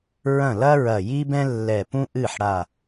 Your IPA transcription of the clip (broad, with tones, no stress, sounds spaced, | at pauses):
ɹ ɐ̃˥˩ l ɐ˥ ɹ ɐ˧˩ j i˥ b ɛ̃˥ lː ɛ˧˩ p ũ˥ ʔ ɨ˥˩ ħ ɽ a˧˩